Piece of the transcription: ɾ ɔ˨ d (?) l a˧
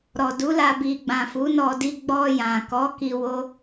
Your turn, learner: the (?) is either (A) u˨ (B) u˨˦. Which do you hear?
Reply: B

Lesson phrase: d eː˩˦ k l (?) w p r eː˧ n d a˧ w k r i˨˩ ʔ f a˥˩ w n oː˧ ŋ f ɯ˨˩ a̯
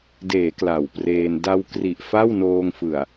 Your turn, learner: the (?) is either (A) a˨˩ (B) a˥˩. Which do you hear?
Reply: A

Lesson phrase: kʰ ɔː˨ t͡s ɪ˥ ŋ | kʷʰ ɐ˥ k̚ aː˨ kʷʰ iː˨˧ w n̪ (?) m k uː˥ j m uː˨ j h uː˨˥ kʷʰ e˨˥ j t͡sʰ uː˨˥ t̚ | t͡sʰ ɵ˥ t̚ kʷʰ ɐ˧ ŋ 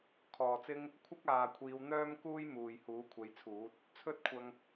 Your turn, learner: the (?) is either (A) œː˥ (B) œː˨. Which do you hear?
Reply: A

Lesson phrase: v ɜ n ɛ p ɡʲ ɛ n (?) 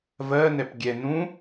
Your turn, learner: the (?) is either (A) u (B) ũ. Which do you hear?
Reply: B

